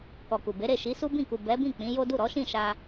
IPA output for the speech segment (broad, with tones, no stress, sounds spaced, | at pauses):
k ɔ˨ k u˨ b e˨˦ ɾ e˦˨ ʃ i˨˦ s u˦ b ĩ˦˨ k u˨ b ɛ˨˦ b ĩ˦˨ k͡p ĩ˨˦ j o˦ d u˦˨ ɾ ɔ˨˦ ʃ ĩ˦˨ ʃ a˧